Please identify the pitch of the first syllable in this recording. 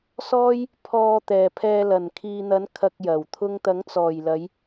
high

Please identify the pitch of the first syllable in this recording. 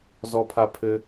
high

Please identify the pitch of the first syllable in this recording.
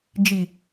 low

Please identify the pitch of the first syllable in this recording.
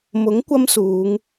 rising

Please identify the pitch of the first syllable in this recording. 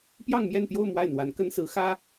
falling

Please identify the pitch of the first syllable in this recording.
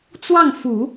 falling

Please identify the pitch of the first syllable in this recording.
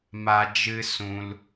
high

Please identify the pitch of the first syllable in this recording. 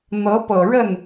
rising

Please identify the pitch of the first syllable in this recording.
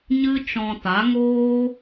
high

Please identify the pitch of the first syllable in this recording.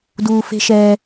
low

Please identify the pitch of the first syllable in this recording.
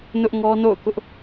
high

